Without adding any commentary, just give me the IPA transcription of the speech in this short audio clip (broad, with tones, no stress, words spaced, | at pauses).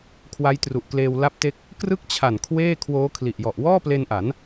kʰwa˦˥jtru˨˩ʔkleː˧w la˦˥p̚te˦˥k̚ | krɯ˥˩k̚t͡ɕʰa˨˩n kʰweː˥˩ kʰwoː˦˥kʰli˨˩ʔjɔ˨˩ʔ wɔː˥˩ple˧nʔa˩˦n